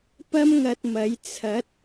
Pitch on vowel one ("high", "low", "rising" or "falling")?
high